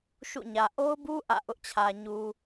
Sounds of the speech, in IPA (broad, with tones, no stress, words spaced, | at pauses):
ʃṵ˦˨ɲä˨ ʔo˦ʊ̯bu˦ ʔä̰˦˨ʔʊ˦ʔt͡ɕʰä˨ ɲu˨